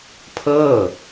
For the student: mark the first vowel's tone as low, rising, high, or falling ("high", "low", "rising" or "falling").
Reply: falling